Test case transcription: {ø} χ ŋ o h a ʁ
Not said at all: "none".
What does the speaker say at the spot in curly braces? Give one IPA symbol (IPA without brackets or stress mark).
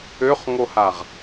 ø